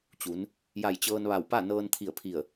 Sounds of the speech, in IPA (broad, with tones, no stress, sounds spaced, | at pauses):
t͡ɕ u˩˧ n | j a˧˩ j t͡ɕ ɤː˧ n ʋ a˧˩ w p a˥˨ n ɤː˧ n t̪ʰ i˧˩ ə̯ pʰ i˧˩ ə̯